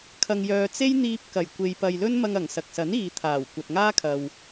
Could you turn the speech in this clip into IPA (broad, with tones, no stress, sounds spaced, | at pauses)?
kʰ ɐ˨ ŋ j œː˨ t͡s e˥ j n̪ iː˧ p̚ k ɐ˨˩ j kʷ e˨ j p ɐ˨ j l ɵ˥ n m ɐ˧ ŋ ɐ˨˩ ŋ s ɐ˨ k̚ s ɐ˨˥ n iː˨ t̪ʰ aː˨˩ w kʷ ɐ˨ t̚ ŋ aː˥ kʰ ɐ˨ w